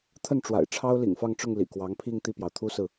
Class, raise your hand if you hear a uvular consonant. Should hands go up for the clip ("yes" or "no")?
no